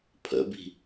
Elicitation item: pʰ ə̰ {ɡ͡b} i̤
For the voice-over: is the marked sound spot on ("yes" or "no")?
no